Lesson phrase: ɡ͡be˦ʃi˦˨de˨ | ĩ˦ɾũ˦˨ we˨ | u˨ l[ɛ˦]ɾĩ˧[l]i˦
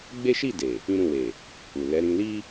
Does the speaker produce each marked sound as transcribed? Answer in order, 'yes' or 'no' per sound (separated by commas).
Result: no, yes